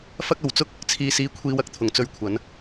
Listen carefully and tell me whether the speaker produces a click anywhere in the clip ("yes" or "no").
no